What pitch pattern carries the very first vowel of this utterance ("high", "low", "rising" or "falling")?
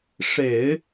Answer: low